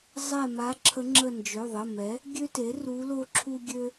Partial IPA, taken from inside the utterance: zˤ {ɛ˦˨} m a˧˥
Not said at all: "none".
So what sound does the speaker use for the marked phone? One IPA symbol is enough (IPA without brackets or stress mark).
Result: ɛ˦˨